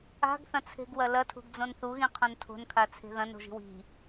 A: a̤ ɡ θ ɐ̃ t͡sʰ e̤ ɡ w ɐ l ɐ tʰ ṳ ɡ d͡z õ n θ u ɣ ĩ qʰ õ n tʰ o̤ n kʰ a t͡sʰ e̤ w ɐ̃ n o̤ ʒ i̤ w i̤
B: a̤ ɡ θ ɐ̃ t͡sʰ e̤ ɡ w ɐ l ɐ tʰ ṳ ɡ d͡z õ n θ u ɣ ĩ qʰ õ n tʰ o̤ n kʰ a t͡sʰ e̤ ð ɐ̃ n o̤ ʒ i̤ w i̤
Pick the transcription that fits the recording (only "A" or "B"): B